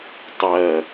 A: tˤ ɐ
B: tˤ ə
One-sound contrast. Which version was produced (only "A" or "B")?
A